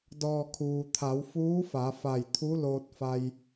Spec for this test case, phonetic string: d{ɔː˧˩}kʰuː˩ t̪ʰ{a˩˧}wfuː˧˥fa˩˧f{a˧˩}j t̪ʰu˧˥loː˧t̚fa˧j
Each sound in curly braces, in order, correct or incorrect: correct, correct, correct

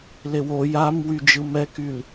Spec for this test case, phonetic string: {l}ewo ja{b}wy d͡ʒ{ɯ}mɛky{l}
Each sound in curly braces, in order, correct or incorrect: correct, incorrect, correct, correct

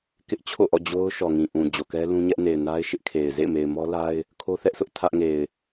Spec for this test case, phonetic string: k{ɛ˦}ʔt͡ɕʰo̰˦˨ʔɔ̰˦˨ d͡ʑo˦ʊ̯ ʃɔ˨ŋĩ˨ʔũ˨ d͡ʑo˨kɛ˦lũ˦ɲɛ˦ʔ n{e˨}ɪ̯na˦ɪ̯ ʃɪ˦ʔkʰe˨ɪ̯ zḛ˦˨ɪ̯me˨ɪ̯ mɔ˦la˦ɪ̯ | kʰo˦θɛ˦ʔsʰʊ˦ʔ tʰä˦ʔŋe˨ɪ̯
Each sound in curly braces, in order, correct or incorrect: incorrect, correct

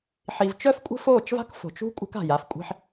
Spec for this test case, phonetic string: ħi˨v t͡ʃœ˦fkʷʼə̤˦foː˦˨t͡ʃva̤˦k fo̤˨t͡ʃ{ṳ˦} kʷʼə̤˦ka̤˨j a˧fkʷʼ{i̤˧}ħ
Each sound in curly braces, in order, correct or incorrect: correct, correct

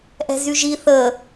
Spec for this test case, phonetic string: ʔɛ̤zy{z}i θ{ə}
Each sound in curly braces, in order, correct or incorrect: incorrect, correct

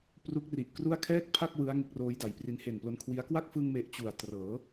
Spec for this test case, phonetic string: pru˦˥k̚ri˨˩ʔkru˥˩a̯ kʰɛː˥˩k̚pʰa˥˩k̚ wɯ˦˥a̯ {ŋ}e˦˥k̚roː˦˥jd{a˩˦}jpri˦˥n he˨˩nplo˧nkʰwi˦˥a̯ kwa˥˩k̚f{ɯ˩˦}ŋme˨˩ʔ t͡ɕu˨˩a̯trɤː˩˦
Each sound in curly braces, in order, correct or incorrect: correct, correct, incorrect

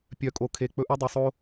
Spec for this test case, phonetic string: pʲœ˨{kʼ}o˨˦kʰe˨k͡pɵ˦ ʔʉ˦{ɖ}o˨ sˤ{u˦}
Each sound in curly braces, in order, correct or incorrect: correct, incorrect, incorrect

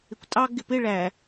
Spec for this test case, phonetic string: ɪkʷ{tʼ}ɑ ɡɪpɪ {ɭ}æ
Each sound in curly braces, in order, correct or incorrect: correct, correct

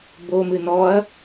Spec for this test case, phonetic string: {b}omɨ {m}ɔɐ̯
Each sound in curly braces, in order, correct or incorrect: correct, incorrect

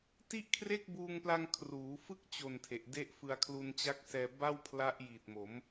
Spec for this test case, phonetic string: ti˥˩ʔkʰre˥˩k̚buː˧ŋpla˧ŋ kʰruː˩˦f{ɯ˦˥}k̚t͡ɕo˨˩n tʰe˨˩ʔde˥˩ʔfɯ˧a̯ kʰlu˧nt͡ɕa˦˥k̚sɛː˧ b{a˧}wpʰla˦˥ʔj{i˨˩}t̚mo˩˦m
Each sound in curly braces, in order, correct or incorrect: correct, incorrect, incorrect

